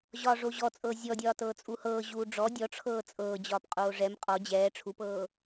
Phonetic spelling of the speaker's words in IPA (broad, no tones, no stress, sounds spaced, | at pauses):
ʑ ɒː ʐ o ʑ ɔ t͡sʼ ɤː zʲ ɔ dʲ ɒː t ɤː t͡sʼ u h ɤː ʑ uː ɖ͡ʐ ɔ dʲ ɔ ʈ͡ʂʰ ɤː t͡sʼ ɤː d͡ʑ ɒː p qʼ oː ʐ ɛ m qʼ ɔ d͡ʑ ɛː ʈ͡ʂʰ u p ɤː